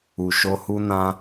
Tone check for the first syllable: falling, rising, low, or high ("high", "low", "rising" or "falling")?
low